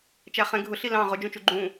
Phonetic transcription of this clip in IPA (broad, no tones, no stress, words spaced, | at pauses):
t͡ʃæχɛ̃ ɡʱʊ ɬilɑ̃ ʁʊ d͡ʒũt͡ʃuɡ͡ǃũ